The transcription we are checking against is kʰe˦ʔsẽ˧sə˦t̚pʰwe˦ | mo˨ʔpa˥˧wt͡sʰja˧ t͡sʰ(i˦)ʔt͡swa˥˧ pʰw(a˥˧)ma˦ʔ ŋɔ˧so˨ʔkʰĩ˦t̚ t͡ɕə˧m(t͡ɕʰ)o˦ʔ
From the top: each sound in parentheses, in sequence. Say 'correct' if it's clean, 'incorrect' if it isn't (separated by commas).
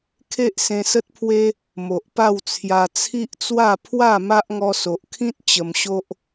correct, correct, incorrect